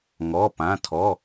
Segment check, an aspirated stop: present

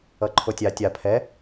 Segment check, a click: present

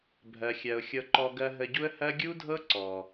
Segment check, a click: present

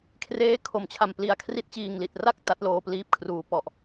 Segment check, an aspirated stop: present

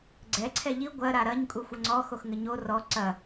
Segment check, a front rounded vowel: absent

